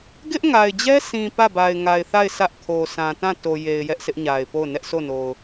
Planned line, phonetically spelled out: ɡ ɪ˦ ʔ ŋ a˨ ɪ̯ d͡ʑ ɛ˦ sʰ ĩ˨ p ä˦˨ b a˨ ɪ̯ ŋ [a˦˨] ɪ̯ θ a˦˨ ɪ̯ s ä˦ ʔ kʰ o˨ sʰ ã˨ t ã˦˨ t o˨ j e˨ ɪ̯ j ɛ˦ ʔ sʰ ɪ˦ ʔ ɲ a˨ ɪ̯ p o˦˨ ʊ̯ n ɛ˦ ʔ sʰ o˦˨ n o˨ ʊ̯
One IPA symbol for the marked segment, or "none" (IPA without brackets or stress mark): a˨